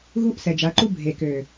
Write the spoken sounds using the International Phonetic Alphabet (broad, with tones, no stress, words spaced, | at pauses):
ɣu˦ʔsɛ˨d͡ʒa˨˦ǃu˦ bʱe˨kø˨